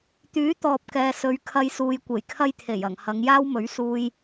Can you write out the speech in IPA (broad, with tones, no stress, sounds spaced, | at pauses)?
t̪ yː˨˥ t̪ ɔː˨ p̚ k ɛː˨ s ɵ˨˧ ɥ kʰ ɐ˧ j s uː˨ j kʷ e˨˩ j kʰ ɐ˥ j t̪ʰ e˨˩ j ɐ˨˩ ŋ h ɐ˨˧ ŋ j aː˥ w m ɵ˨˥ ɥ s uː˧ j